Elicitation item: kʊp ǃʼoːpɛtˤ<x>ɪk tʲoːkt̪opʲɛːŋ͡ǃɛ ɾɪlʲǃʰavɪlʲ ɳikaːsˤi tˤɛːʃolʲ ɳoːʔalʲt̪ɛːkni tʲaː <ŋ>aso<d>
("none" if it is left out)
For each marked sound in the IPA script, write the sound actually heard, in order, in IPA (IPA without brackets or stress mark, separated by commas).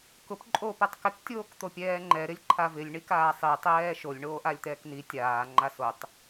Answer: k, ŋ͡ǃ, tˤ